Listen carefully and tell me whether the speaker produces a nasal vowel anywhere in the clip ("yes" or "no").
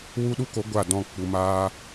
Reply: yes